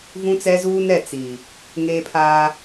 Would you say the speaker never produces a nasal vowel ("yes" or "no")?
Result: no